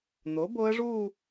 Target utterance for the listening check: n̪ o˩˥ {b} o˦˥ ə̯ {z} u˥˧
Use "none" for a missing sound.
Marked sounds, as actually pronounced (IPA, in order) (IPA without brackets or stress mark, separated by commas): b, ʐ